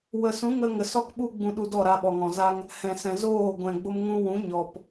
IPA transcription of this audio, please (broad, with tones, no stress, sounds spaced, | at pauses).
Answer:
w ə˨ s ũ˨˦ ŋ ə˧ ŋ ə˨ s ɔ˦ k ɓ u˦ ɡ͡b ũ˧ ɗ u˧ d ɔ˦˨ ɾ a˧ ɓ ɔ˨ ŋ ɔ̃˨ z a˦ ŋ | h ɛ̃˨ s ɛ̃˨ z oː˦˨ ɡʷ ɛ̃˨ ɡ͡b o˧ m ŋ ũ˧ w ũ˨˦ ɲ ɔ˨ p